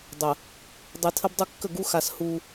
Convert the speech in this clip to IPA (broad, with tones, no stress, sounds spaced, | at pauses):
dˤ ə˨ | dˤ i˨ tʰ ə˦ b dˤ u˦ kː ə˦˨ ɡ u˦ x a˨ s h u˦